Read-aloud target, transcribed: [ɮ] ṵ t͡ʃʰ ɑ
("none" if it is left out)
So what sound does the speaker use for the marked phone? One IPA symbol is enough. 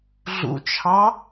ɮ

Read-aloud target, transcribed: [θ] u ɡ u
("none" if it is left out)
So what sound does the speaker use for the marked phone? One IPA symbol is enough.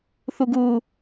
θ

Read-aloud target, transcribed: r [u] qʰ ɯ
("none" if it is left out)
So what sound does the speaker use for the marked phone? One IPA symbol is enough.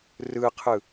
ɯ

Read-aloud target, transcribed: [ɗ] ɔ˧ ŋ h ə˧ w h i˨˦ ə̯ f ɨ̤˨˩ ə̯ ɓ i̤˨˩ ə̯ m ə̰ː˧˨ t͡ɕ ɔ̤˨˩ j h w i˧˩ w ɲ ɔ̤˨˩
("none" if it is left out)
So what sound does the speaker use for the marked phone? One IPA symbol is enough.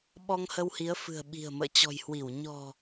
ɓ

